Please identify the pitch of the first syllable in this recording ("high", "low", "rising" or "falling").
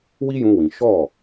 high